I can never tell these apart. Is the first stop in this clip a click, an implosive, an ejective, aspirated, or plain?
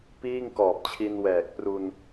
plain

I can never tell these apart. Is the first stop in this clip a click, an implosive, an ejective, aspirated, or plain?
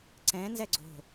click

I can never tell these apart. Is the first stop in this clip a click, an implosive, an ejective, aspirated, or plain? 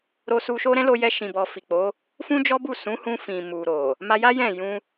plain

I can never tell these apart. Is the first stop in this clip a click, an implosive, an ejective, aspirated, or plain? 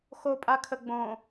ejective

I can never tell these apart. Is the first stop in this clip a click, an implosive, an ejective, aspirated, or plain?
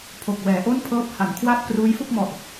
aspirated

